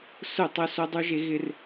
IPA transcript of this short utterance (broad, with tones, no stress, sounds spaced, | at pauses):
s ʊ˦˨ tˤ ʊ˦ s o˦ dˤ u˦ ʒ e˦ ɣ ɪ˦ r